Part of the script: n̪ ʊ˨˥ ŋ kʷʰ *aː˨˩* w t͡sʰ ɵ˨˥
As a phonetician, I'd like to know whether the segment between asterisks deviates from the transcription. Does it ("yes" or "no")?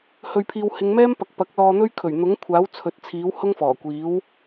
yes